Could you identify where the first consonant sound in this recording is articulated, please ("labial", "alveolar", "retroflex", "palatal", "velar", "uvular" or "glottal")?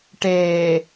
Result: retroflex